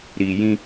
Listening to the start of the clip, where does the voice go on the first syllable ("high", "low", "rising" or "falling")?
low